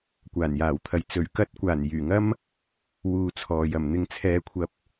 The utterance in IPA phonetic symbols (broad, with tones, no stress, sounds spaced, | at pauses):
kʷ aː˨˩ n j aː˨˩ w t̪ʰ ɐ˨ j t͡s ɵ˨˩ ɥ k ɐ˧ t̚ kʷ aː˨˩ n j yː˨˩ ŋ ɐ˥ m | w uː˧ t͡sʰ ɔː˨ j ɐ˨˩ m n̪ ɪ˧ ŋ t͡sʰ ɛː˨ kʷʰ ɐ˨˥ p̚